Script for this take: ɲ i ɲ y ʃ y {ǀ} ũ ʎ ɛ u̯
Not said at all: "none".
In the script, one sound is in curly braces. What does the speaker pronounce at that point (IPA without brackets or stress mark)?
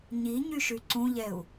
ǀ